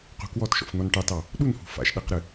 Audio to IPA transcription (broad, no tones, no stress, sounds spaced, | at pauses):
q ṳ k w ɔ t ʃ ɔ̰ f n̪ ɔ n ʈ ɑ t ɑ | ɗ u n h ṳ f a̰ ʃ ɗ ɛ q ɾ ɨ